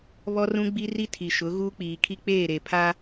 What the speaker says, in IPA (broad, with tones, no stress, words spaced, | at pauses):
βɔ˦rũ˦ɡ͡bi˦ri˦ tʰi˨ʃʊ˨˦ ɣuː˦k͡piː˨kʰi˦ k͡peː˦˨ɾe˨ pʰa˦